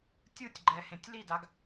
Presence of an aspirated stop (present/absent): absent